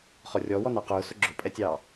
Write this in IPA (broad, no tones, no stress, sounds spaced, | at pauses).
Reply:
χ ɔ rʲ ɔ w ɔ n ɑ q ʊː s ʊ ɡ͡ǁ ʊ pʼ ɛ tʲ ɑː